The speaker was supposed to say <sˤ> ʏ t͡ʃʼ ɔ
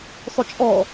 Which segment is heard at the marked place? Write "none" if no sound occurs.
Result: sˤ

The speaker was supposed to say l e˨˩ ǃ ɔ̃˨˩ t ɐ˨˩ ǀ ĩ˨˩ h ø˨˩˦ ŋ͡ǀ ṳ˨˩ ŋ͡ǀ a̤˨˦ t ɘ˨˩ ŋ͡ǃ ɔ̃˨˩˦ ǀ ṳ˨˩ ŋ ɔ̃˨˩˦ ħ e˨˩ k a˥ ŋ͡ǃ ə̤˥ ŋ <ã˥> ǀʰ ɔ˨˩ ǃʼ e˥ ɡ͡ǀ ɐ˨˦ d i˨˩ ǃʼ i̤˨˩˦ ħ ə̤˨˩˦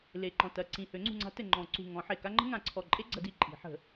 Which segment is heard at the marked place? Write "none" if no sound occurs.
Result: ã˨˩˦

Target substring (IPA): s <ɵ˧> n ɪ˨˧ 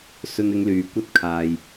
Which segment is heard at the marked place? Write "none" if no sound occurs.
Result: ɵ˧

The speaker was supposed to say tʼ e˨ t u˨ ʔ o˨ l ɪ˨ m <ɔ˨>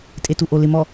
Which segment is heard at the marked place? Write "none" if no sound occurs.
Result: ɔ˨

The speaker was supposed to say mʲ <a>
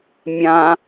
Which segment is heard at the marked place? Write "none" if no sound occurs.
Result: ã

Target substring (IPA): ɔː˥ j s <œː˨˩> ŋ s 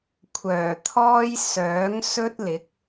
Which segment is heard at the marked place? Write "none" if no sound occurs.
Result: œː˨˥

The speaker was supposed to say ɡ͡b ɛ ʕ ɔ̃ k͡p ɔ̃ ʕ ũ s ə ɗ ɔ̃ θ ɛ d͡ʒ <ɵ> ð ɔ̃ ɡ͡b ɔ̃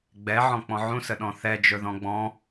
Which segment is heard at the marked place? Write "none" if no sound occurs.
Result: ɵ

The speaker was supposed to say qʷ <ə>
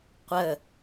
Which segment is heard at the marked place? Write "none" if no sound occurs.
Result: ə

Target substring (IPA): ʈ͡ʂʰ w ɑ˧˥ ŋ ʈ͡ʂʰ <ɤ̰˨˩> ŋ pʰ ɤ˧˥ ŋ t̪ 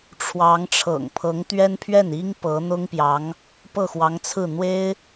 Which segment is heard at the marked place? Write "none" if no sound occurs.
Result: ɤ̰˨˩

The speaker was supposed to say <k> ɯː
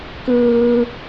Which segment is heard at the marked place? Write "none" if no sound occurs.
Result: k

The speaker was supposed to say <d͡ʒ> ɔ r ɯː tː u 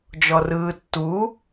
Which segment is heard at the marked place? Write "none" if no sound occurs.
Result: d͡ʒ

